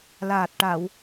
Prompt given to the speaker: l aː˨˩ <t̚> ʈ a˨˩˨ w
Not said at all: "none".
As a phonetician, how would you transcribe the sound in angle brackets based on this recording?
t̚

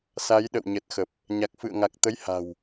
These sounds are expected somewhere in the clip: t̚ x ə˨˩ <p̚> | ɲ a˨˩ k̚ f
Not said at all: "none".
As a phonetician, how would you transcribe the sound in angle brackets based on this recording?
p̚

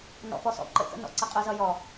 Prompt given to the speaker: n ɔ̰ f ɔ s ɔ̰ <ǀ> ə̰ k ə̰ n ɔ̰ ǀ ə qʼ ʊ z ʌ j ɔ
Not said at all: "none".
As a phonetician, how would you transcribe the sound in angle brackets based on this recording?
ǃ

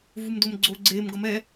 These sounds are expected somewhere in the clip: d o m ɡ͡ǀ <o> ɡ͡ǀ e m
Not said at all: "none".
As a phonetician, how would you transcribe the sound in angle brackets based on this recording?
o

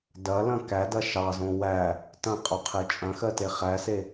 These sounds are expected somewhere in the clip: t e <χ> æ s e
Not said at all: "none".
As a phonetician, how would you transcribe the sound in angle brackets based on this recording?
χ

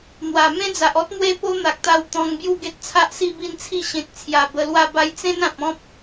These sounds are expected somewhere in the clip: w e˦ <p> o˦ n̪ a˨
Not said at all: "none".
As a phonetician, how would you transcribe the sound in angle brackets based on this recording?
p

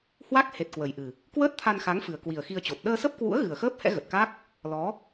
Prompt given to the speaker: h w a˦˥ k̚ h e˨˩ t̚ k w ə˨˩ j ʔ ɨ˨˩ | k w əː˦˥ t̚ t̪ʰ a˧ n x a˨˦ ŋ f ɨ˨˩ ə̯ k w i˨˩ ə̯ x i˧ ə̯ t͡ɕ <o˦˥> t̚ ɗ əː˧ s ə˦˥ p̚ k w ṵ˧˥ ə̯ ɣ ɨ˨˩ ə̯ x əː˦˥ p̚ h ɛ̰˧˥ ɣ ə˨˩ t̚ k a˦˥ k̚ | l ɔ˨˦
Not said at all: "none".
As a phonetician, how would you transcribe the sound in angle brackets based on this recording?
o˨˩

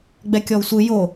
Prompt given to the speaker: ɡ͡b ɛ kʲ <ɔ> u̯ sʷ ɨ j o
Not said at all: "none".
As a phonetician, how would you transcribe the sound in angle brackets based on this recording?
ɔ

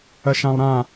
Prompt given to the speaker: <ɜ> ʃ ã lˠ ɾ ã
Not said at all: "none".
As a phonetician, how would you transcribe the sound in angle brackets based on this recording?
ɜ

